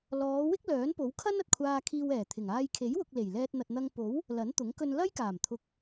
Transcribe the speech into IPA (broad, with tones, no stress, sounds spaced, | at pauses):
l ɔː˨˧ w ɪ˥ k̚ l œː˨˥ n p o˨˥ w kʰ ɐ˥ n ɐ˨ t̚ kʷʰ aː˧ kʰ iː˧ w ɛː˨˩ t̪ʰ ɪ˨˩ ŋ aː˧ j kʰ e˨˥ j w ʊ˨ k̚ l e˨˩ j l ɛː˧ t̚ n̪ ɐ˨ t̚ n̪ ɐ˧ ŋ p o˨˥ w | l ɐ˨˥ n t̪ ʊ˨˥ ŋ k ɵ˧ n l ɐ˥ j k aː˨˩ m t̪ʰ ʊ˨ k̚